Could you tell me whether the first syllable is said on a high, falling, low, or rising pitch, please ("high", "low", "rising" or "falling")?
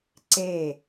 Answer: falling